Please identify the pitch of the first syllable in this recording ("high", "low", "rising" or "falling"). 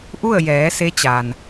falling